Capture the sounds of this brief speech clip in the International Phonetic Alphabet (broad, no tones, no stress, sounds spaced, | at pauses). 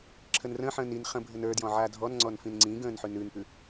ǁʰ ə n r ə̃ː ħ ə̃ː n i n χ ə̃ bʱ ə n ə˞ d j ɔ̃ ʕ a dʱ ɔ n ŋ͡ǀ ɔ n f ĩ n ŋ͡ǀ ĩ ɡ ə̃ː n ħ ʉ n ʉ n p ʉ